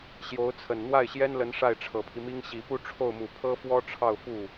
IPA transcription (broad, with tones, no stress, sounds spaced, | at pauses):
ɕ j o˧˥ ʊ̯ t͡sʰ ə˨˩ n n̪ w a˥˩ ɪ̯ ɕ j ɛ˥ n l ə˧˥ n ʂ a˥˩ ɪ̯ ʈ͡ʂʰ ɤ˨˩ pʰ i˦ m i˥ ŋ ɕ i˨˩ p u˥˧ ʈ͡ʂʰ o˥˩ ʊ̯ m u˨˩ pʰ ɤ˥ f w ɔ˥ ʈ͡ʂʰ ɑ˥˧ ʊ̯ f u˥˩